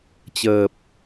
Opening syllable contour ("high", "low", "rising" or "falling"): low